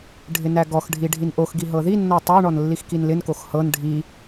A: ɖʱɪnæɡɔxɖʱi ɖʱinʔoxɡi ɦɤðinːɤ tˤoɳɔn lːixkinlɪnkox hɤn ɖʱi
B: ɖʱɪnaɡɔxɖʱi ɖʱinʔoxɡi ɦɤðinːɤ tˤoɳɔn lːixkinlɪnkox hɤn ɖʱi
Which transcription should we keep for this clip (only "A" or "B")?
A